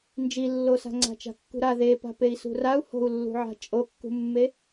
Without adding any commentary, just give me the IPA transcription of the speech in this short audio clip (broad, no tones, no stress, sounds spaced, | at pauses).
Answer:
n d͡ʒ i lː o s a̤ ŋ͡ǀ a̤ t͡ʃ a̤ kː ṳ ɾ a ð e p a̤ p e i̯ s ṳ r a u̯ h o̤ u̯ lː ṳ ʕ a̤ t͡ʃʼ o kː ṳ mː e